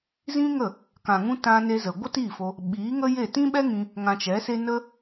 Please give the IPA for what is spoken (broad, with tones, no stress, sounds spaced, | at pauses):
z ĩ˦ ŋ ə˦˨ | k ã˨ ŋ ũ˧ t ã˧ n e˧ z ə˨ ɡʷ ə˦ t iː˦˨ f o˧ | ɓ iː˨˦ ŋ ə˦ j e˦˨ t ĩ˦ ɓ ɛ˦ ŋ ĩ˧ | ŋ ã˧ t͡ʃ ɛ˨˦ s e˦ n ə˦